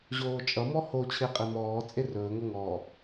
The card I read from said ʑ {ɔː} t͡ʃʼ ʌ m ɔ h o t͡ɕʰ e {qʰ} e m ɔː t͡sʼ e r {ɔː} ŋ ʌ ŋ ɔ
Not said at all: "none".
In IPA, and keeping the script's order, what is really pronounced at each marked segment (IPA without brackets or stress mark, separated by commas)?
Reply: oː, qʼ, ɵː